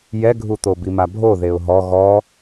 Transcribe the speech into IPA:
j ɛ ɡʱ u t̪ o b i m a bʱ o ð e ʊ̯ ɦ ɔ ɣ ɔ

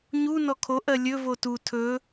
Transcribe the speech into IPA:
ɲ u n ɔ kʰ o ʔ ɜ lʲ ɵ v o t u tʰ ɵ

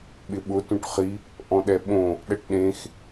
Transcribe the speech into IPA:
ɓ ɪ ɓ ʊ t ũ ʈ χ i | ʔ ɔ̃ ɗ ɛ ɓ õ | ɗ ɛ ʈ ɗ ẽ x

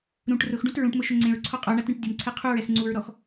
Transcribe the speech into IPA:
ɾ ũ ʈ r ʊ x ɖ ũ t ɹ ũ ʈ m ʊ ʃ ʊ ŋ͡ǀ ẽ ɹ ǀʰ ɔ qʼ ɔ ɳ a t ɾ ẽ ʈ dʲ ʊ m ǀʰ ɛ qʰ u ɹ ɛ x ŋ͡ǀ u ɹ ɾ ɔ x

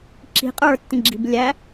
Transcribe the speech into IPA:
ǁ i̤ qʼ ə˞ tː ĩ ɡ͡ǁ i̤ b lʲ æ

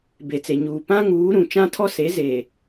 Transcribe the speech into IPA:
b e˨ t͡s e˨ ɲ uː˨ p ã˦ ŋ uː˨˦ ɾ ũ˨ t͡ʃ ã˦ tʰ ɔ˦ s e˨˦ z e˨

